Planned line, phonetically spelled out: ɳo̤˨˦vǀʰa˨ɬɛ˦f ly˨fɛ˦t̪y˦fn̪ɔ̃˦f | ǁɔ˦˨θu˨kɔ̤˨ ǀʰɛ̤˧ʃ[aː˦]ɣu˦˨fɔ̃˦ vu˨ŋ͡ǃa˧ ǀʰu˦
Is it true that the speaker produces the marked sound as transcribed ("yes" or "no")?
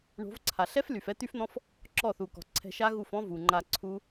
no